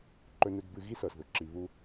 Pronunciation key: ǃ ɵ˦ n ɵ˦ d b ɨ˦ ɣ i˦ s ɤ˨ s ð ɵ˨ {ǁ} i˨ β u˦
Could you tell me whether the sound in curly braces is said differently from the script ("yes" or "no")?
no